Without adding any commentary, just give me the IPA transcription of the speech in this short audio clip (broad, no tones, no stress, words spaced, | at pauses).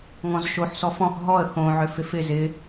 ŋɔ̃zʃoħ sɔfɔ̃x ɦɔə̯ xõ ʕʏfɪfɪ zɪ